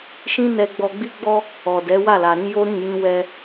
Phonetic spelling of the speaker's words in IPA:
ʃ ĩ˦ n ɛ˧ ɡ͡b ɔ˧ ɡ͡b i˦ ɡ͡b ɔ˦ | ɔ˨ d ɛ˨˦ w a˦˨ l a˨ ɾ ĩ˨˦ j o˦ ɾ ĩ˦˨ j ĩ˧ w ɛ˧

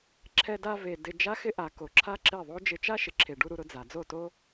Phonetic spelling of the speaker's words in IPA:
ǁʰ ɛ˧ d a˧ v e˨ d ɪ˧ d͡ʒ a˦ x ɪ˦ ʔ a˨ k o˨ ǁʰ a˦ ǁ e˦˨ ðˤ o˦ d͡ʒ ɪ˧ t͡ʃ a˦ ʃ ɪ˨ ǁʰ e˨ ɖ u˧ ɾ u˧ ɾ ʊ˧ d͡z a˨ d͡z o˦˨ t o˦

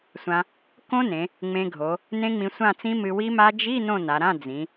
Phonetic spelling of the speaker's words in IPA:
sʷ ã˧ | k õ˦˥ n ẽ˩˧ | ŋ͡m ẽ˧ ɡʱ o˩˧ | n ẽ˦˥ ŋ͡m ĩ˧ sʷ ã˥˨ t͡s ĩ˦˥ m ɨ˧ w i˦˥ m a˦˥ d͡ʒ i˧˥˧ n õ˥˨ n a˩˧ ɾ ã˧˥˧ d͡z ĩ˩˧

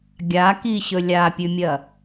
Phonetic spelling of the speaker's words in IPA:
ɡʲ a k i ɕ ɵ lʲ a pʲ ʉ mʲ ɐ

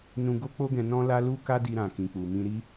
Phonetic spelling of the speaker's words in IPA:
n ũ˧ ɡ o˦ k͡p o˦ ɡ ɛ̃˧ n ɔ̃˦ l a˦ l u˦ k a˦ d i˧ ɾ ã˨ k ĩ˨ k͡p u˨ m ĩ˧ ɾ i˦

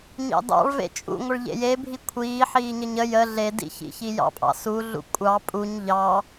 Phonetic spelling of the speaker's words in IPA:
ɲ ɑ̰ d ɑ̰ ɭ v ḛ t͡ʃʼ ṵ ŋʷ ə ɭ ʎ ḛ j e bʱ i kʷʰ iː ħ iː ɲ ə ɲ ə j ə ɮ e d ḭ ç ḭ ç i j ɑ̰ pʼ ɑ̰ s u ɮ ṵ kʷʼ ɑ pʼ u ɲ ʎ ɑ

